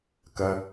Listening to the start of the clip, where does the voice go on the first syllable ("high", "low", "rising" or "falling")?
low